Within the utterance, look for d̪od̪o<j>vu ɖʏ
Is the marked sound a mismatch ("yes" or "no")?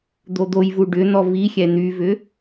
no